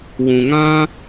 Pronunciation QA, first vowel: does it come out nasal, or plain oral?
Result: nasal